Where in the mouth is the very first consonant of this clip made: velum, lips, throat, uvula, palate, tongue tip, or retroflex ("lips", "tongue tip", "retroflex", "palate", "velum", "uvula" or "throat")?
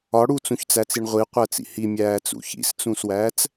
retroflex